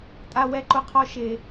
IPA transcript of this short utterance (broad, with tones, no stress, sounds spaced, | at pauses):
tʼ a˦ w ɛ˦ ǃ ʊ˦ qʰ ɔ˦ ʃ e˦